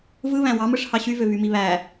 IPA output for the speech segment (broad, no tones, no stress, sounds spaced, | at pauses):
v ɯ β æ̃ w ɑ m ɯ ʂ h ɑ ɕ y v ø v y m i β æ